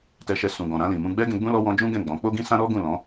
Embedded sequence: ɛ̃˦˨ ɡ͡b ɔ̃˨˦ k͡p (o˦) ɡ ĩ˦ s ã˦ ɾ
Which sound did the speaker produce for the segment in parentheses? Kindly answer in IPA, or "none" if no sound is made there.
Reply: o˦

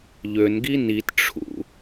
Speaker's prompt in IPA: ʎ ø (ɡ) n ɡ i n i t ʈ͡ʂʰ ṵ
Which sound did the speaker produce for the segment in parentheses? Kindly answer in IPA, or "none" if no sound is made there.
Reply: none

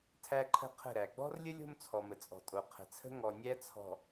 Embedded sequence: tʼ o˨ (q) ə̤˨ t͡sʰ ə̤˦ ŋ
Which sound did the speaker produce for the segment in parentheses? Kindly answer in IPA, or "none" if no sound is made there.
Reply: qʰ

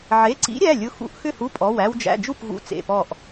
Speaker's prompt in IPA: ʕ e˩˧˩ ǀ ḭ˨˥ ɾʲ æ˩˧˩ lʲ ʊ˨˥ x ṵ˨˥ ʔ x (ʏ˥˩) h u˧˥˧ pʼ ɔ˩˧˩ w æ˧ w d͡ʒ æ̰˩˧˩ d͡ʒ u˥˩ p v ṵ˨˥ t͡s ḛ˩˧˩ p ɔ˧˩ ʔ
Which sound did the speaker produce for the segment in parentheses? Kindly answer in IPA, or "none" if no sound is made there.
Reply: ʏ˥˩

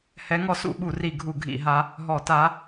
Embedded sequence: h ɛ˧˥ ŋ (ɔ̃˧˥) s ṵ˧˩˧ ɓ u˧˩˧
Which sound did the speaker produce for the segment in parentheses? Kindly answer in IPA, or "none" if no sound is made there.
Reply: ɔ˧˥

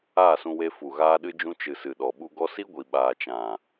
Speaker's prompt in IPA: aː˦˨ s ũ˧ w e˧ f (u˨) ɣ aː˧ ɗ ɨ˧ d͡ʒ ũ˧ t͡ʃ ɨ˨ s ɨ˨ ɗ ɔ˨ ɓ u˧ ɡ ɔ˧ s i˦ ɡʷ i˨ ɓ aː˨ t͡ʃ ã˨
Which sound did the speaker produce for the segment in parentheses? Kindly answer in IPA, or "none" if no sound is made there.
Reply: u˨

